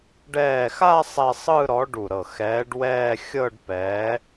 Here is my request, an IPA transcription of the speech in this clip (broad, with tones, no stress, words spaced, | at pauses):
ɖɛː˧˩xa˥˧ sˤɛ˥˧ sˤɯ˥˧ɾɔ˨˥ ɖu˧˩ɾɤ˧˩ xɛː˨˥ɖwɛː˥˧ xʲɤ˥˧ɖpɛː˨˥